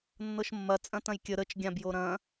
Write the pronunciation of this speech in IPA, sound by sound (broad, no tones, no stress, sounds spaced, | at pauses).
nː ɤ ʃ mː ɐ t͡sʼ ɐ̃ t ɐ̃ j kʲ ə ɾ ə t͡ʃ ɡʲ ã b j o ɾ ɐ̃